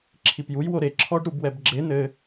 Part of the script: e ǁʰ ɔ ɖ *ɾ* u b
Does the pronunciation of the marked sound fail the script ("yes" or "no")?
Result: no